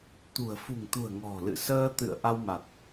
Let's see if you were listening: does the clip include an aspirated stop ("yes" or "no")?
no